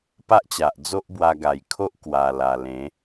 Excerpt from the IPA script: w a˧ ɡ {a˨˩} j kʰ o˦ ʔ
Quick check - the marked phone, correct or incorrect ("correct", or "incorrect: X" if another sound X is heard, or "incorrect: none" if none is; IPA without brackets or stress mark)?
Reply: correct